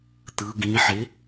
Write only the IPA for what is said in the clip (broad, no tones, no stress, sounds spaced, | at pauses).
t̪ ɯ ɡ ĩ ħ e